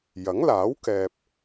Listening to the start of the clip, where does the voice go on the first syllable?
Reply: rising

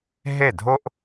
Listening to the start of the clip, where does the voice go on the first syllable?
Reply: falling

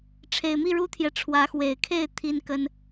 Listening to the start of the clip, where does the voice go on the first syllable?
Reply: low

